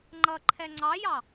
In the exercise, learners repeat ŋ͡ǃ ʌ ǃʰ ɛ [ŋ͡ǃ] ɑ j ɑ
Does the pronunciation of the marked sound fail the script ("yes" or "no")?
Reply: yes